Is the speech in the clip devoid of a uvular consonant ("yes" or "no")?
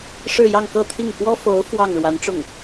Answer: yes